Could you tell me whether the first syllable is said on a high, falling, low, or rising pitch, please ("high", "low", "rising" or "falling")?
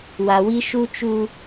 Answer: low